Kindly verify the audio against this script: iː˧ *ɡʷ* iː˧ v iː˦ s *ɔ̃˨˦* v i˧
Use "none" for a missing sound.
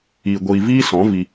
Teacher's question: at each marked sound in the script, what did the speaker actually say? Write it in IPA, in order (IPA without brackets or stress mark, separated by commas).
ɡʷ, ɔ̃˨˦